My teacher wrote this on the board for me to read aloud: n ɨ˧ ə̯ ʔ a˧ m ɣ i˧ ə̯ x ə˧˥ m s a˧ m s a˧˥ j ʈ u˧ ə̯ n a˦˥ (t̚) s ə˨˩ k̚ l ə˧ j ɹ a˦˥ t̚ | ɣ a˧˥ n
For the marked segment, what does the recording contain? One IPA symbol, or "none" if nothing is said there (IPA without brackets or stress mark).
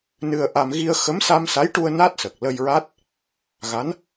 t̚